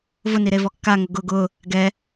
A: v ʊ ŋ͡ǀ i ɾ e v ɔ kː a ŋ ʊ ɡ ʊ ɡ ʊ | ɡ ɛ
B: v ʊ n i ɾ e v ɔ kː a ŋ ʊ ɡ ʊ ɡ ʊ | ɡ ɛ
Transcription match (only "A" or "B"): B